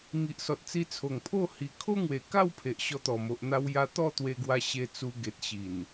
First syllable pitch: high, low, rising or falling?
low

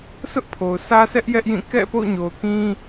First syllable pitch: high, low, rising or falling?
high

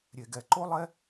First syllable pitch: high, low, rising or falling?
low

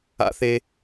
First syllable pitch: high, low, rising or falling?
low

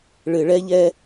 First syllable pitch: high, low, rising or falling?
low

